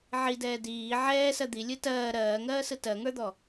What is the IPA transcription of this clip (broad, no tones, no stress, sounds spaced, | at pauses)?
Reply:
ʕ i d ɛː d iː ʕ ɛː s ɜ d̪ i lʲ ɯ t ɜː ɾ ɜː ŋ ɜː s ɯ t ɜ ŋ ə˞ d̪ ɔ